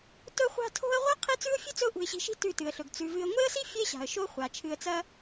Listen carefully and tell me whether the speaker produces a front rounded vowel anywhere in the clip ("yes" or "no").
no